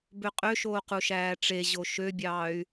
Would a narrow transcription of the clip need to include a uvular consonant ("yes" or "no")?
yes